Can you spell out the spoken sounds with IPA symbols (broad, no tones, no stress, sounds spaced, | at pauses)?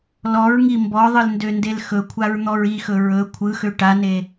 l ɔ ɹ ŋ i m b ɔ ðˤ ɯ l n d ø n d e l x ɵ kʷʰ a ɹ n̪ ɔ ɹ i x ɵ ɹ ɵ kʷʰ ɯ x ø ʈ a n e